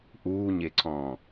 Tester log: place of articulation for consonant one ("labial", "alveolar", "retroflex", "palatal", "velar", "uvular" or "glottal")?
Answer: glottal